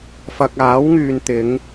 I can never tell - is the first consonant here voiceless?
yes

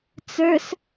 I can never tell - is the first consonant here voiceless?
yes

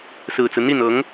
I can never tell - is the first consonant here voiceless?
yes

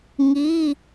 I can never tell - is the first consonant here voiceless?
no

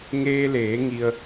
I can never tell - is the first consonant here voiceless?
no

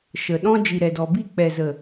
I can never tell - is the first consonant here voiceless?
yes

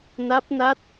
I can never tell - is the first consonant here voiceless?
no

